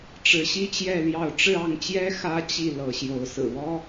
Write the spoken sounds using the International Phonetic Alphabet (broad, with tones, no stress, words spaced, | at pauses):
ʈ͡ʂɻ̩˨˦ɕi˦t͡ɕjɛ˥˨ljɑ˥˨ʊ̯ ʈ͡ʂɻ̩˥˨ɑ˥˨ŋt͡ɕjɛ˦ xä˦ t͡ɕi˥˨ lɤ˨˦ɕjo˨˦ʊ̯sɹ̩˨˩ wɔ˦